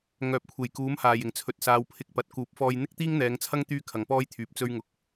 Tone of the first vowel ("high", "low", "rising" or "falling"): low